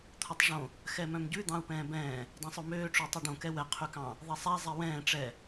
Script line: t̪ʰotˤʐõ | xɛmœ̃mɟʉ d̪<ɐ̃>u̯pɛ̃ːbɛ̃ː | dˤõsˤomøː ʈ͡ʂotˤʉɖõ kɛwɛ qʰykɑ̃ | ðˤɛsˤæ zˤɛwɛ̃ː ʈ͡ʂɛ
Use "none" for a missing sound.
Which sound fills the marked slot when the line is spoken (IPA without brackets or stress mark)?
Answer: ɑ̃